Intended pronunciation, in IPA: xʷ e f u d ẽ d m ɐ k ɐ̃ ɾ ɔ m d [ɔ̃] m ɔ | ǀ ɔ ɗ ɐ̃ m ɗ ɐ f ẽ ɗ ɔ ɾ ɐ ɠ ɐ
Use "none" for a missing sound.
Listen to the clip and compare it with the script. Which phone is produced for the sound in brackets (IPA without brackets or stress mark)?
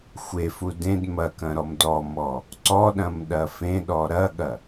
ɔ